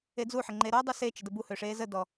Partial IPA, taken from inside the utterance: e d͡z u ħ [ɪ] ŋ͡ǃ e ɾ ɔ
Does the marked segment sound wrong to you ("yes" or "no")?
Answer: no